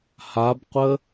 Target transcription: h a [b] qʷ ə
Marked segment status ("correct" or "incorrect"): correct